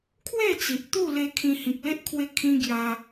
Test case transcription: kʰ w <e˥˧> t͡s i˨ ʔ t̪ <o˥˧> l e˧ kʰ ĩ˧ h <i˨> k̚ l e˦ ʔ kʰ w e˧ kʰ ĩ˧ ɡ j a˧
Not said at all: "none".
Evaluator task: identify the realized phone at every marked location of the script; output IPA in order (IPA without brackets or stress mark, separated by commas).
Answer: e˥˧, u˥˧, ĩ˨